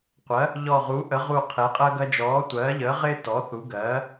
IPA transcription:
qʷ ɜ˩˥ | ʎ ɔ˧˩ ʁ u˩˥ ʔ ə˩˥ ʁ u˧˩ qʰ e˩˥ qʼ əː˦ ɡ ɐ˦ d͡ʒ ɔː˩˥ tʷ ɜː˩˥ ʎ əː˩˥ ʁ ɪː˦ t ɔ˩˥ θ u˩˥ ɡ ɜː˩˥

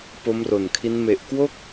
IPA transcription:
p o˦˥ m r o˨˩ n kʰ i˦˥ n m e˨˩ ʔ k w o˥˩ k̚

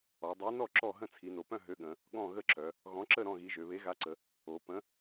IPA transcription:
ɔ˩˧ dˤ e˨˥ n ɔ˥˨ ǁ ɔ˥˨ ɦ ə̃˥˨ t͡sʰ i˩˧ n o˩˧ p œ̃˥˨ ɦ ø˨˥ ɠ ə̃˩˧ | ɠ ɔ̃˥˨ ɣ ə˥˨ ǁ œ˩˧ | ɣ ɔ̃˨˥ ǁ ə˥˨ ɾ ɔ̃˥˨ ɣ i˨˥ ʒ ø˩˧ β e˨˥ ɣ a˨˥ ǀ ə˩˧ | o˩˧ p ə̃˨˥

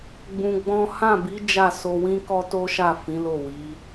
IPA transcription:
ɡ͡b ũ˧ ɡ͡b ɔ̃˦ h ã˦˨ b i˨˦ d͡ʒ a˦˨ s o˧ w ĩ˦ k ɔ˦ t o˦ ʃ a˦˨ f ĩ˨˦ l o˦˨ w i˨˦

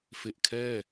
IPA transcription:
f e˨˩ ʔ kʰ ɛː˥˩

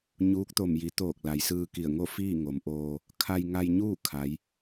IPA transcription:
ɲ uː˧˥ k̚ t̪ o˧˩ m j i˩˧ t̪ oː˧˩ k̚ l a˩ j s ɯː˧ k i˧˩ ə̯ ŋ o˥˨ f iː˥˨ ŋ o˩˧ m ʔ oː˧ | kʰ a˧ j ŋ a˧ j ɲ uː˥˨ kʰ a˩˧ j

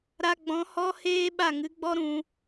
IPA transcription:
ɾ a˧ ɡ͡b ɔ̃˨˦ h ɔ˦ h eː˦ ɓ a˦˨ ŋ ɨ˨˦ ɡ͡b ɔ˦ ɾ ũ˧

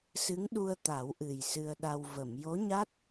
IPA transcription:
s ɨ˧˥ ŋ ɗ u˧ ə̯ t̪ a˨˩˦ w ʔ ɨ˨˩ j s ɨ˧ ə̯ ɗ a˧ w v ə˨˩˨ m j o˧˥ ɲ a˦˥ t̚

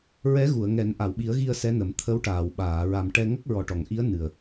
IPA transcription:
ɹ ɛ˧˥ ɣ u˨˩˨ ə̯ ŋ ɛ˨˩˦ n ʔ a˨˩˨ w ɓ i˨˩˦ ə̯ ɣ i˧ ə̯ s ɛ˧˥ n ə˨˩˦ m t̪ʰ ə˧˥ w ʈ aː˨˩˨ w ɓ aː˨˩˨ ɹ a˨˩ m ʈ ɛ˧ ŋ ə˦˥ k̚ ɹ ɔ˨˩ ʈ ɔ˨˩˨ ŋ ʔ i˧˥ ə̯ n ɨ˨˩ ə̯

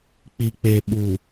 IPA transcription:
k͡p i˨ k͡p e˨ ɓ u˨

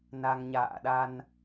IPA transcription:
n a˧ ŋ ɲ a̰ː˧˨ ɗ a˧ n

